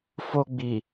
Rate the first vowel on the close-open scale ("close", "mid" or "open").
mid